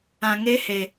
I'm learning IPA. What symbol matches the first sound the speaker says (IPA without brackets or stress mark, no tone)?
ã